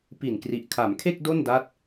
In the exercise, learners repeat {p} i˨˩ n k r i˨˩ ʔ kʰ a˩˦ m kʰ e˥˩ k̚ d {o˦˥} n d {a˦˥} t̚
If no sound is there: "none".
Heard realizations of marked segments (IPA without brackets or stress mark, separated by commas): p, o˥˩, a˦˥